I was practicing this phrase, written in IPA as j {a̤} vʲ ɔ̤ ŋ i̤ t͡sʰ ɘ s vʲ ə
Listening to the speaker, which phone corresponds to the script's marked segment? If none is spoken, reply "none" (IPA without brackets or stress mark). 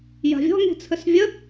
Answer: a̤